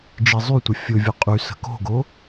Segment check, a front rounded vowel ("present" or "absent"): present